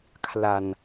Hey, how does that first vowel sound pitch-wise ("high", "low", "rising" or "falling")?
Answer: low